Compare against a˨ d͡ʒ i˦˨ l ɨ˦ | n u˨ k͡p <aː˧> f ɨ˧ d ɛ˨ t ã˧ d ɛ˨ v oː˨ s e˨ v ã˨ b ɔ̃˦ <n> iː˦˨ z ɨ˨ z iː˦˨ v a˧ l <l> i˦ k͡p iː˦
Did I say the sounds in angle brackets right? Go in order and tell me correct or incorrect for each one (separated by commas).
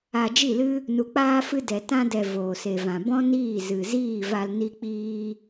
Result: correct, correct, incorrect